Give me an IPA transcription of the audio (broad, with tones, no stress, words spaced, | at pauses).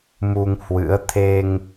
mu˧ŋhwɨ̰˧˥ə̯ t̪ʰe˧ŋ